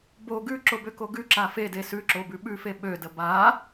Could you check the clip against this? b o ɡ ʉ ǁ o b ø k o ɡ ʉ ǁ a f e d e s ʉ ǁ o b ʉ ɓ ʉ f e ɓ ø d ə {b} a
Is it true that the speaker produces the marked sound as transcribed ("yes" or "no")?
yes